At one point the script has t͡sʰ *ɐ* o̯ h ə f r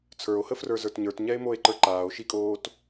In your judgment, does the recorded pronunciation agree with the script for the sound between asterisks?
no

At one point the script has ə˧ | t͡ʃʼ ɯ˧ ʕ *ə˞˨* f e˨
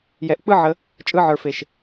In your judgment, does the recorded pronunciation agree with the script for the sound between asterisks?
yes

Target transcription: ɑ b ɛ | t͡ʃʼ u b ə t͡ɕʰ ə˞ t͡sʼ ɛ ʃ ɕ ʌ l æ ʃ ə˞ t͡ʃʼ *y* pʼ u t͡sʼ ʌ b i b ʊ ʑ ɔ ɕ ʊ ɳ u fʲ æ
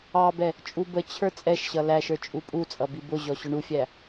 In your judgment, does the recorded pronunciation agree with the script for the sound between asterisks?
no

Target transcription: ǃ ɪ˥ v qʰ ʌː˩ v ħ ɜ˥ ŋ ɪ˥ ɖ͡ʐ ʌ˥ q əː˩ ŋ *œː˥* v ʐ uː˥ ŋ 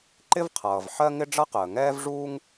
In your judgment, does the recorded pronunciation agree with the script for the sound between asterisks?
no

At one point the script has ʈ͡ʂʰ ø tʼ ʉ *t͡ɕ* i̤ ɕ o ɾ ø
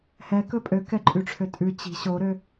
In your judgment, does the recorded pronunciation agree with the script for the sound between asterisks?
yes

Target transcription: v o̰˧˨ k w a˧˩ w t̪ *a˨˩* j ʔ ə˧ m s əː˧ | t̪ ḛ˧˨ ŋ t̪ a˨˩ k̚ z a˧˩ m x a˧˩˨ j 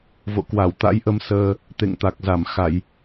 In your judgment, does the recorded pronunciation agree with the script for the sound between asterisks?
no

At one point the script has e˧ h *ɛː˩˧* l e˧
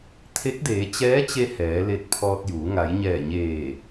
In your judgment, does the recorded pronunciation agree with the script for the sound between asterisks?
yes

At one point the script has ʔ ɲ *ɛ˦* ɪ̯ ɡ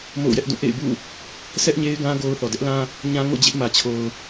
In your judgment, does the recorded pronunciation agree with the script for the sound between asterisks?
no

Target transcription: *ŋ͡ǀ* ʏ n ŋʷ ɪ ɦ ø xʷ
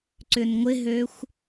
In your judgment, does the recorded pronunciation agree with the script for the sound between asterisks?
no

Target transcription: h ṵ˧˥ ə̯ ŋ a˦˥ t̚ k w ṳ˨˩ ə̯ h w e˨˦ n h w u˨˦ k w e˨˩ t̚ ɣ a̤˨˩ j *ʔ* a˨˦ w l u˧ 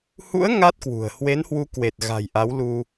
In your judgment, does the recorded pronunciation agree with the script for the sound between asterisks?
yes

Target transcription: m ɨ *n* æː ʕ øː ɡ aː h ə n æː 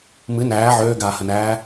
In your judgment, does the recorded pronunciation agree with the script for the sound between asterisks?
yes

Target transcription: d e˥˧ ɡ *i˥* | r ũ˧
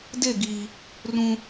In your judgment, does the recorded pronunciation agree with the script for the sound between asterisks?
no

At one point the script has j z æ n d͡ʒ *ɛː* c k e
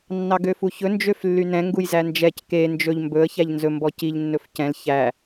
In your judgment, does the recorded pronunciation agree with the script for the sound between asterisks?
no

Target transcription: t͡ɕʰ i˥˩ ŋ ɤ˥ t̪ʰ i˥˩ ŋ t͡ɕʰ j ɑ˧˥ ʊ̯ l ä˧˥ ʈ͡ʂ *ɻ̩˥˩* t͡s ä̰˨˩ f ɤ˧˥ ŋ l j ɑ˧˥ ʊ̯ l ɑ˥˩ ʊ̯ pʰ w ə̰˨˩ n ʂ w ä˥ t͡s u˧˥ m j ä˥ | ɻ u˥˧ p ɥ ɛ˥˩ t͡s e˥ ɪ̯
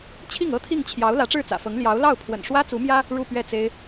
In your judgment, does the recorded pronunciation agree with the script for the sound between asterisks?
yes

